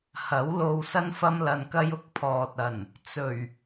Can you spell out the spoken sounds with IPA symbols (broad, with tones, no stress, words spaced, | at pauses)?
hɐ˨˥wlo˧w sɐ˥nfɐ˥mlɐ˧nkɐ˥j ʊ˧k̚ pʰɔː˨t̚ ɐ˨˩n | t͡sɵ˨˩ɥ